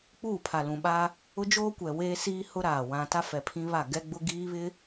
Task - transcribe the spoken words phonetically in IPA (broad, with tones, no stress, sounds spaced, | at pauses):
k͡p uː˦˨ pʰ a˨ l ũ˨ ɓ aː˦ | ʊ˦ d͡ʒ oː˦ kʷ ɛ˨ w eː˦ s iː˦ h ʊ˦ ɾ aː˨ w ã˦ t a˦ f ɛ˨ pʰ ĩ˦ β a˦˨ ɡ ɛ˦ ɡ͡b ʊ˦ ɡ iː˦ β ɪ˦